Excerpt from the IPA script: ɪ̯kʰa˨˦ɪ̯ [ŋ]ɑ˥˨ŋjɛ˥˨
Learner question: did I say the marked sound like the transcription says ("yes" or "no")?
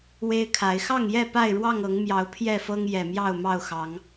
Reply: no